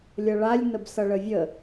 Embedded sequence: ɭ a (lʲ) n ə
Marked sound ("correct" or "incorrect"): correct